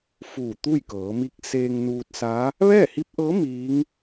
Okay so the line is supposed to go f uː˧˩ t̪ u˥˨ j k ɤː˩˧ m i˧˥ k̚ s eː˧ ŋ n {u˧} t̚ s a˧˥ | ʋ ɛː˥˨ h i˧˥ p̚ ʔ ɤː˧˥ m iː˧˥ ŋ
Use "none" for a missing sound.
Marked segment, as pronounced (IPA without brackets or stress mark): uː˧